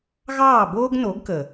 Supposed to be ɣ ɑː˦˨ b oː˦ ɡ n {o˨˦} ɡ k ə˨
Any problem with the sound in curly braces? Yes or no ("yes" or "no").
no